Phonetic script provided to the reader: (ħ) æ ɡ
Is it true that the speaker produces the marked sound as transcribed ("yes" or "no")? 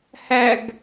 no